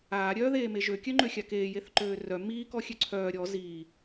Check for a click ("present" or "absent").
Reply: present